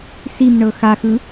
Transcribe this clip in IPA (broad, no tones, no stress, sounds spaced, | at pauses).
s i m ɳ ɤ x a x ɯ